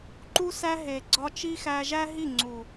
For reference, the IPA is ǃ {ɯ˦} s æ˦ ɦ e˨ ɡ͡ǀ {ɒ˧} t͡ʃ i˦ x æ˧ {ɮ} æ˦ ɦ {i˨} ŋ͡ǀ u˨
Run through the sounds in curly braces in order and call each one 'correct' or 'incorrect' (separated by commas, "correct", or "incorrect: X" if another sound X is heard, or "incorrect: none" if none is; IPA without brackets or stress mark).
incorrect: u˦, correct, incorrect: ʒ, incorrect: i˦˨